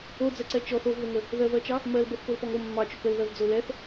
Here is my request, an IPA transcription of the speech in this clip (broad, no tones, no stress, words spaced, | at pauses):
od͡zɛǀɛ t͡ʃɔθ ovðəŋə | ðɜvɜt͡ʃɑ | mɜlbɤθpolpɔŋ o mːɑt͡ʃok əlðɜvd͡zo lɛθ